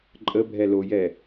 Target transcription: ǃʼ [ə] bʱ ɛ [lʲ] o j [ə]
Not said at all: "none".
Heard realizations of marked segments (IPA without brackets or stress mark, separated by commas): ə, l, ɛ